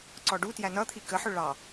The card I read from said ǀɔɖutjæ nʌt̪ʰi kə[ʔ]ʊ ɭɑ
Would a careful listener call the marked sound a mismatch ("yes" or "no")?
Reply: yes